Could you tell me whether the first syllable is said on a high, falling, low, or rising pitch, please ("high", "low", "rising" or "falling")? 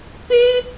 high